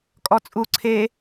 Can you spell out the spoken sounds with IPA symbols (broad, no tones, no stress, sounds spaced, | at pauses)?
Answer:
kʼ ɔ t͡sʼ u ǀʰ e